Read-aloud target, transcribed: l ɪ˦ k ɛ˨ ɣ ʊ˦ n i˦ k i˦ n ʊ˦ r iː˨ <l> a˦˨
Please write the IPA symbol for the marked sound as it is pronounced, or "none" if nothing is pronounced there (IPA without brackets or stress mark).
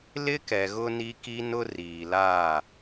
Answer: l